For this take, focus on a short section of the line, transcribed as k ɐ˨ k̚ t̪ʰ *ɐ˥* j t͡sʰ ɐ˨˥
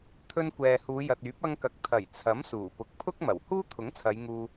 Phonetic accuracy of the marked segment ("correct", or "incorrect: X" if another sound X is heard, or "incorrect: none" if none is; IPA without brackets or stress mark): incorrect: ɐ˨˩